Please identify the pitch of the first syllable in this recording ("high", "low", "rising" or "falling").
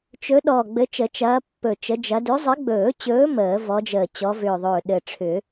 rising